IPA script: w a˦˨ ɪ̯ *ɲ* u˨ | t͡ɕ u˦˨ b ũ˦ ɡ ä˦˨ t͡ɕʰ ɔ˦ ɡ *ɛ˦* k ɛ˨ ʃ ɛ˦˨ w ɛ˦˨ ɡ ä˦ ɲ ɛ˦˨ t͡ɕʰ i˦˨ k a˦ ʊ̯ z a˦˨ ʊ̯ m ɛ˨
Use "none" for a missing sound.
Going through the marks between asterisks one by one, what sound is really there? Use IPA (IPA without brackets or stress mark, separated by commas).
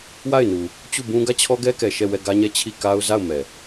n, ɛ˦